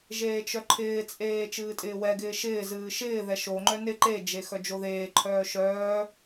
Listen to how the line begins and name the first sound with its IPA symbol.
ʒ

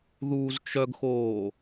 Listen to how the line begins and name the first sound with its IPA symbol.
ð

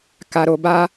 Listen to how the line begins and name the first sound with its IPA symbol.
k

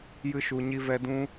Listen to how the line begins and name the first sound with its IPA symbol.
j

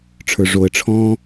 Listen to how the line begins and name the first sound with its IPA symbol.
ʈ͡ʂʰ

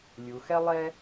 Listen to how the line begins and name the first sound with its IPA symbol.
lʲ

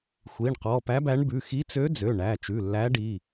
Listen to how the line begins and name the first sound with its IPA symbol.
xʷ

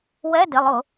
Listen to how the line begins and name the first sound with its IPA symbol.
w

